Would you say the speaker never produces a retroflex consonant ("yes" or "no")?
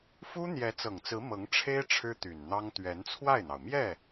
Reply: no